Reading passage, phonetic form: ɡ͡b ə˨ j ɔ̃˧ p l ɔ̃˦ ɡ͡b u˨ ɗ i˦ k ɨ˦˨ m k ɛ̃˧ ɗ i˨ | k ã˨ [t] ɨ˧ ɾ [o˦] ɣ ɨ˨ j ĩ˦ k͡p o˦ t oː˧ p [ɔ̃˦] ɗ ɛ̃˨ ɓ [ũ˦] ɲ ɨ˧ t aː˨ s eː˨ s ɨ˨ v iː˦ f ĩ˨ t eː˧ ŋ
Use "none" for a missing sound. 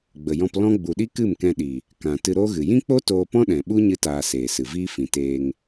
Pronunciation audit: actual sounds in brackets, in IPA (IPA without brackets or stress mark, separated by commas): t, oː˦, ɔ̃˦, u˦